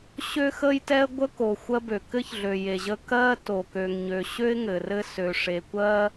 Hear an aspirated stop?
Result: no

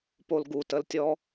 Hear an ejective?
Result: no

